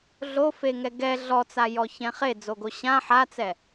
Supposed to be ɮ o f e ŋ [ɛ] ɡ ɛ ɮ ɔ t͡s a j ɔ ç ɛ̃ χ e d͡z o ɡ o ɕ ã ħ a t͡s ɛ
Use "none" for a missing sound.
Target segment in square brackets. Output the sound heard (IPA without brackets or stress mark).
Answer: ɛ